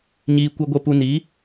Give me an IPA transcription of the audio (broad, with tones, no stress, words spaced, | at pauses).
ɲiː˨ kʷɛ˨ɡʷɛ˨ pu˨ni˨˦